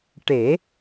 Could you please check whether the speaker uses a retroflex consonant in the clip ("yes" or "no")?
yes